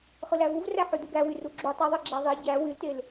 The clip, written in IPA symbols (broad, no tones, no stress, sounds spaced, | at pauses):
χ ɯ l æ v u v r æ ħ y d̪ u ɡ æ w y r u ɡ͡ǁ u tˤ y ðˤ ɯ ɡ͡ǁ æ ðˤ e ɟ æ w y l t e l